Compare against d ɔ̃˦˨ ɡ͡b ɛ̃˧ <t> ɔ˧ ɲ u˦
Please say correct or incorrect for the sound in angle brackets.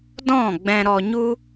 incorrect